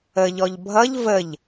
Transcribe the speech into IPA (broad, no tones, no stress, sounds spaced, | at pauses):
ə ʎ ɔ ʎ bʱ ʌ ʎ v ə ʎ